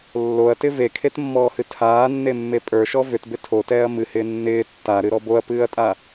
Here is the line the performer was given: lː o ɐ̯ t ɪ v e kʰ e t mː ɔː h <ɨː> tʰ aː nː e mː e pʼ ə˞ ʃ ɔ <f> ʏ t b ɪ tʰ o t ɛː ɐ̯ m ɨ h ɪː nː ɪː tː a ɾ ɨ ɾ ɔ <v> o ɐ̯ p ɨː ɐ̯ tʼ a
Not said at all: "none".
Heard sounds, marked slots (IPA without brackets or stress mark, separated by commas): ɨ, v, b